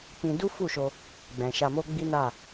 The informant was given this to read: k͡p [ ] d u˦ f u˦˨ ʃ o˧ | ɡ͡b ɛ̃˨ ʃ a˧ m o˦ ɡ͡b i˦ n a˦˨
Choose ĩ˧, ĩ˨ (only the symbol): ĩ˧